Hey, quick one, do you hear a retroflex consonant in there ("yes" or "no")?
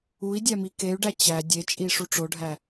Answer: yes